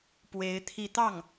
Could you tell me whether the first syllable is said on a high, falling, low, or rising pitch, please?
rising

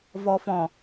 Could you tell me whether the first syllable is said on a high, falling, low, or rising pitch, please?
low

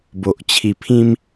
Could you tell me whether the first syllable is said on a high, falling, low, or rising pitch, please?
low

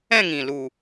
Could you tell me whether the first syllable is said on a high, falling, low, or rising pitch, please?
falling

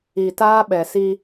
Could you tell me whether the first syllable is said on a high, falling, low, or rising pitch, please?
low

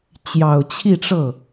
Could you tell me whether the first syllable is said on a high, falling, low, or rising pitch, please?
low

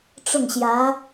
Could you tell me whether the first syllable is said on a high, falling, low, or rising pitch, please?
falling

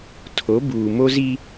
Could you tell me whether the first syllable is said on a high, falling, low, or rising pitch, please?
rising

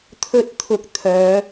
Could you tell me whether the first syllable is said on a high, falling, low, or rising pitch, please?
high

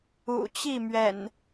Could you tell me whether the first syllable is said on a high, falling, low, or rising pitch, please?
low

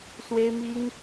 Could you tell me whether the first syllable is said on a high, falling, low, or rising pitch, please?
high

